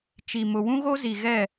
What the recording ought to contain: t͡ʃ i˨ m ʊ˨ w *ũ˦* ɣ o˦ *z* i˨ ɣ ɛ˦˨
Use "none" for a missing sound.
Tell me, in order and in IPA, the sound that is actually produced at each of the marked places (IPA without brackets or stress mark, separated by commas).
ũ˦, z